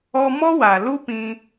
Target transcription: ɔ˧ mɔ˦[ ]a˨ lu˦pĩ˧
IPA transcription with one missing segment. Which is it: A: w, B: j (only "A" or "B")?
A